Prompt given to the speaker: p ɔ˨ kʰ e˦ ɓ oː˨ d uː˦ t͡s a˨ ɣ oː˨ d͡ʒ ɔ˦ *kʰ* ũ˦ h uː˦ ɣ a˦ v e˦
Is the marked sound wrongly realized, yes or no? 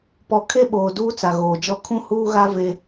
no